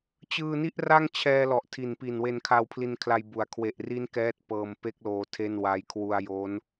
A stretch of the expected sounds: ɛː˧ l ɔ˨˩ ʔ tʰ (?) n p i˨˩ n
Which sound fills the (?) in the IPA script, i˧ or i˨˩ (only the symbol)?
i˨˩